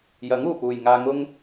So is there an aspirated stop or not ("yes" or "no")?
no